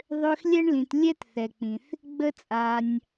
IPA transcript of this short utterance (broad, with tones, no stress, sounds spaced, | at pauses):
ðˤ ø˦ x lʲ ɛ˥ ɳ l ĩ˨ t lʲ ɛ˦ t θ ɛ˩ k͡p ĩ˩ θ | ɡ͡b ə˥ t͡sʼ a˨ nʲ